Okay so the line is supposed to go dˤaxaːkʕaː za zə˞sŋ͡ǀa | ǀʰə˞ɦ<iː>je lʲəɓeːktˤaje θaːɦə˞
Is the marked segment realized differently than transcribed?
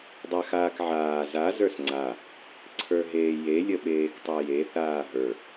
yes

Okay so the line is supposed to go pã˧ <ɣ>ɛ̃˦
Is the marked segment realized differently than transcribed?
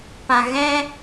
no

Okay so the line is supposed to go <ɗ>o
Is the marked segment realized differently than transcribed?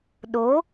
no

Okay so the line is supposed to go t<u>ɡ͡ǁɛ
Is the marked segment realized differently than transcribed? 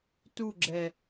no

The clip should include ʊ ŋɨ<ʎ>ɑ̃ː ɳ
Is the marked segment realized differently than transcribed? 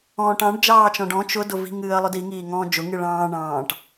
yes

